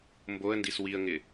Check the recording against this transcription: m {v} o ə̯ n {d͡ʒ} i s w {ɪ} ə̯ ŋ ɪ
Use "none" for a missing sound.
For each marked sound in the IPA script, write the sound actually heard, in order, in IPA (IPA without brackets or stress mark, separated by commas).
b, d, i